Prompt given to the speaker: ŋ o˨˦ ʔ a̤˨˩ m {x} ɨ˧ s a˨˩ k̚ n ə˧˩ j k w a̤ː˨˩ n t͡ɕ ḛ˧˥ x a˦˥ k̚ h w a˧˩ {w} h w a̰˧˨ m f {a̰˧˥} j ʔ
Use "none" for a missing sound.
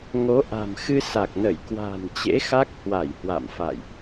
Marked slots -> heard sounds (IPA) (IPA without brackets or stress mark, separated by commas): x, j, a̰˧˨